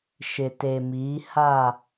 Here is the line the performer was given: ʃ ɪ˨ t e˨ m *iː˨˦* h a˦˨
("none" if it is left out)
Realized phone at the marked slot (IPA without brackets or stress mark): iː˨˦